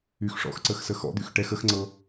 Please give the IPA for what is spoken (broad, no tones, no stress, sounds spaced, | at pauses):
y x ʂ ɔ̰ x ǀ ə x s ə x ɔ̰ d̪ y x ʈ ɛ x ə x ŋ͡ǀ ɤ